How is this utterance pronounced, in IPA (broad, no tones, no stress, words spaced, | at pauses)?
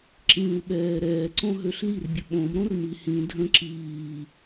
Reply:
ǁĩːu̯ɓɛːɾɛː ǀõɦøɬlirbʲə ɓõmɾõr mihĩ dʱə̃ ǁiː